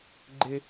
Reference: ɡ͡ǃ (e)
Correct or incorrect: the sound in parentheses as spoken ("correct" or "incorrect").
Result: correct